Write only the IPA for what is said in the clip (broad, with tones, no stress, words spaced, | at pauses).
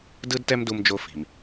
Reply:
dɯ˥dtɛ˥mdu˧md͡ʒo˧ fi̤˩m